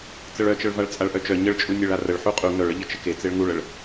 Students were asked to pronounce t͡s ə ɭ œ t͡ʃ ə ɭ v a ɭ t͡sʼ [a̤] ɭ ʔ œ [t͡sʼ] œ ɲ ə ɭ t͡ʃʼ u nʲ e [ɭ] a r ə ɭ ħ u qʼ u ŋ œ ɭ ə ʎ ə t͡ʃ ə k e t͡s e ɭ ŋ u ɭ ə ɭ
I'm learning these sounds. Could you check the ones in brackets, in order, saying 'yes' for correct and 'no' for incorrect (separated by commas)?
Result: no, no, yes